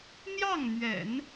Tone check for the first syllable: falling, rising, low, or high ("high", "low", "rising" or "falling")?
falling